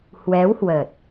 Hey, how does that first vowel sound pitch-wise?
rising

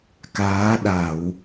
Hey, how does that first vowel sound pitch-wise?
rising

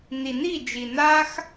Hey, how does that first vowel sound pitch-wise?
low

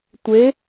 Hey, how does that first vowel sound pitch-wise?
rising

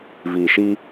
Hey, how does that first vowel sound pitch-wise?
low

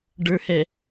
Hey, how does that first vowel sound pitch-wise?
low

